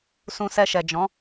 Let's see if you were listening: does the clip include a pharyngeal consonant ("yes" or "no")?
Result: no